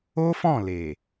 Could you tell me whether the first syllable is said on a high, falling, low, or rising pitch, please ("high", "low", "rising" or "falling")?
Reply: high